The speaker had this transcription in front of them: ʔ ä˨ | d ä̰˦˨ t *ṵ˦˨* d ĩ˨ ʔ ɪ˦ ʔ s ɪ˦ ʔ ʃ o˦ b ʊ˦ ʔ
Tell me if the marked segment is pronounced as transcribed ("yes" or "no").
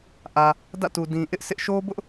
no